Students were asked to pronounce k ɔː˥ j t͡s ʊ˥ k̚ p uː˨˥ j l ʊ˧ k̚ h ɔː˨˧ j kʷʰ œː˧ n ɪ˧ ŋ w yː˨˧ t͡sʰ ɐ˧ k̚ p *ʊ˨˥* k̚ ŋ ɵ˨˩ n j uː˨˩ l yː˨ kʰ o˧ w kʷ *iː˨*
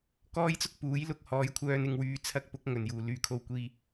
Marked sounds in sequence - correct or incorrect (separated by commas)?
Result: correct, incorrect